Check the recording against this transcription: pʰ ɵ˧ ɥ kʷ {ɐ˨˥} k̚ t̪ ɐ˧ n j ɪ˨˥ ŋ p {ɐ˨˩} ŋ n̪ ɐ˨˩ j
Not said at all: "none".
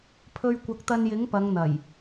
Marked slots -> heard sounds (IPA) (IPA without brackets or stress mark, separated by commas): ɐ˨˥, ɐ˨˧